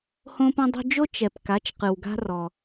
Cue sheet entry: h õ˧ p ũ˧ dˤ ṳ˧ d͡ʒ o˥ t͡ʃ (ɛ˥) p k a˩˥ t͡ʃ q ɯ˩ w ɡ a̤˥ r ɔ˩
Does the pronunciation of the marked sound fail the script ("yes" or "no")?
yes